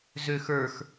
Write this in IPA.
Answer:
z ø x ə˞ x

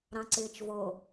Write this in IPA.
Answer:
ɾ ɑ̃ ǀ ɪː t͡ʃ v o

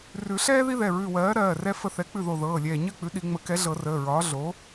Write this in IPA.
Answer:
r ʉ˨˩˦ ɬ ɛː˦ ð i˦ ð ɛ˩˧˩ ɹ ʉ˧˩ w ɜː˩˥ ɾ ɜː˩˧˩ r ɛ˦ f ə˧˩ θ ɛ˩˥ k͡p ʉ˧˩ ð o˧˩ ð ɤː˩˧˩ lʲ ɛː˧˩ ɲ ɜ˥˨ k͡p ʉ˩˥ ɗ i˨˩˦ ŋ͡m ə˩˥ k ɛ˩˥ ɮ ɤ˨˩˦ r əː˩˧˩ ɹ ɒː˩˥ ɮ o˩˥

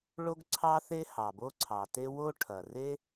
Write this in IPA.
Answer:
ɭ o˥ ɡ ǀʰ ɑ˥ θ e˥ h ɑ˩ b o˥ ǀʰ ɑ˩ t e˥ w o˥ ʈʰ ɐ˩ r e˥

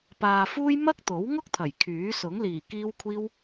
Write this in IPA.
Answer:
p aː˧ f uː˥ j m ɐ˥ k̚ t̪ o˨˥ w ŋ ʊ˥ k̚ t̪ʰ ɐ˨˩ j kʰ yː˨˥ s ʊ˨˥ ŋ l iː˨˩ k iː˥ w kʷʰ iː˥ w

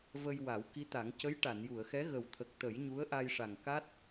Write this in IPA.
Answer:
v ə˧ j w a˨˩˦ w k i˧˥ t̪ a˨˩˦ ŋ c ə˧˥ j ʈ a˨˩˨ n j u˨˩˨ ə̯ x ɛ˧˥ ɣ ə˨˩ w t̪ʰ ə˨˩ k̚ t̪ ə˨˩˦ j ɲ u˧˥ ə̯ ʔ a˧ j ʂ a˨˩ ŋ k a˦˥ t̚

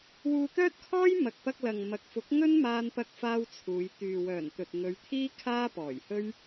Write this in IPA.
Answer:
w uː˧ t̪ œː˥ t̚ kʰ ɔː˥ j m ɐ˨ k̚ p ɐ˧ k̚ l ɐ˨ ŋ m ɐ˨ k̚ f ʊ˨˥ k̚ ŋ ɵ˥ n m aː˥ n p ɐ˥ k̚ f aː˥ w t͡sʰ uː˨˧ j t̪ yː˨ w œː˨˩ n t̪ ɵ˨ t̚ ŋ ɵ˨˧ ɥ t̪ʰ iː˥ kʰ aː˥ p ɔː˨˩ j h ɵ˥ ɥ

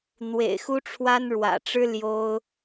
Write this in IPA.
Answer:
n̪ w ḛ˨˩ ɪ̯ x u˥ ʈ͡ʂʰ w a˥ n ɻ w ä̰˨˩ ʈ͡ʂ ɻ̩˥ l j o˥ ʊ̯

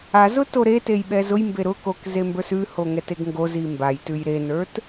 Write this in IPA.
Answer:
a z ʊ t o ɾ e t e j ɓ ɛ z ʊ j m b e ɾ ʊ k o k z e m b ə˞ s ʉ h o ŋ ɛ t e ɡ ŋ ɡ o z i m b a j t ʉ j ɾ e n ə˞ t

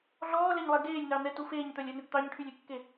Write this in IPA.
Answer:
ɮ ɔː l ɛ ɲ lˠ ɛ ɡ eː lʲ n ɑ n̪ ɛ t u f eː ɲ t̪ œ lʲ œ n ʉ ɡ t̪ ɑ ɲ ʈʰ y lʲ ø kː e

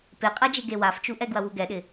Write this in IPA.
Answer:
p e qʼ a d͡ʒ e ɡ e w a f t͡ʃ u ʔ ɛ ɡ w ɐ w u ɡ ɛ ɗ ɪ

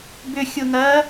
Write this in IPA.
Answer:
b ʏ xʲ ʊ ŋ ɐː

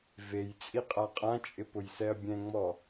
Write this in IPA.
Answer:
v e j t͡sʼ i qʼ a qʼ ã t͡ʃʼ ɪ p ʊ j s ɛ ɐ̯ bʲ ɛ̃ ŋ͡m ɔ

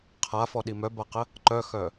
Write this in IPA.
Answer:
qʰ a f ɔ ɗ i m œ b a q ə | ǃ œ x œ

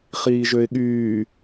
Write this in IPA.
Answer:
χ iː ʒ ø ɪ̯ ɠ yː

